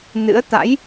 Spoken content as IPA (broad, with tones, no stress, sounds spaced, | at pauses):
n ɨ̰˧˥ ə̯ t̪ a̰˧˥ j